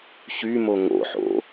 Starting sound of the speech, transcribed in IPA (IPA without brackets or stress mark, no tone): ç